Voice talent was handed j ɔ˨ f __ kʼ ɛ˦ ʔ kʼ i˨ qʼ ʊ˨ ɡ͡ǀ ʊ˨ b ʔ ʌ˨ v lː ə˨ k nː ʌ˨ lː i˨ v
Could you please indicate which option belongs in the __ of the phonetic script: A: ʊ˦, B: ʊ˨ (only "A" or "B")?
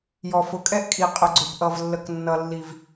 B